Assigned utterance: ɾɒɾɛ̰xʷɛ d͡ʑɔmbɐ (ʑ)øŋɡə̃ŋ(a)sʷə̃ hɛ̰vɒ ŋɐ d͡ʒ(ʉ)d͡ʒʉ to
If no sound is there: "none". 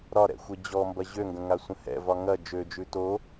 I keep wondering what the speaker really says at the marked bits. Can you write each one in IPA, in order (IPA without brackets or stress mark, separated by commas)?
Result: ʑ, a, ø